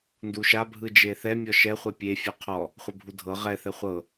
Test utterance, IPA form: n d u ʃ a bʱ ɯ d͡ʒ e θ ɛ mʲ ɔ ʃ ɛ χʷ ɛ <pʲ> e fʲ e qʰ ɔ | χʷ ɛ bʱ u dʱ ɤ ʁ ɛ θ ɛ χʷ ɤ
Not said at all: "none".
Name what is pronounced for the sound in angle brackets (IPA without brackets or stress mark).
pʲ